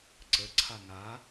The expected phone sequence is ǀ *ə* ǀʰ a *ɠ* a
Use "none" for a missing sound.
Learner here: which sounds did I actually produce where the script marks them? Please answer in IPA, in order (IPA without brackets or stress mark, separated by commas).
ə, ŋ